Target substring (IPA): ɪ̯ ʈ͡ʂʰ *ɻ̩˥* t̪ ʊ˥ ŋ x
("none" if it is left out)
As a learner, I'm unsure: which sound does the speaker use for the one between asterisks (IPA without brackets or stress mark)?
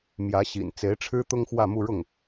ɻ̩˥